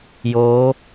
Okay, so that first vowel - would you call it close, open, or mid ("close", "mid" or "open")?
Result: mid